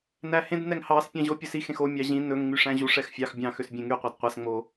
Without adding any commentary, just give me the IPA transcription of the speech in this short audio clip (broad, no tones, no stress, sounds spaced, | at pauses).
n æ h ẽ d n ɛ ŋ h ɑ s pʲ ɑ̃ ʑ o pʲ ɵ s i x ẽ x o mʲ ɑ ʑ ĩ n ɵ ŋ ŋ͡m y ʂ æ̃ ʑ u ʂ ɛ x fʲ ɑ x bʲ ɑ̃ x ø s bʲ ẽ ŋ y qʷ æ d qʷ æ s ŋ͡m o